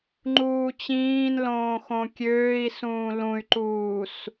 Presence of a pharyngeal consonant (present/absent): absent